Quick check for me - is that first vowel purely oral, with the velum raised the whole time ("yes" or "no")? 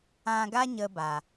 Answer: no